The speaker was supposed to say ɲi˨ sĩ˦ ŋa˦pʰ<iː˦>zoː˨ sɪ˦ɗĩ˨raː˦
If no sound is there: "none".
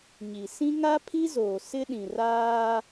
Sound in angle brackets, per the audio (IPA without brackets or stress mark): i˦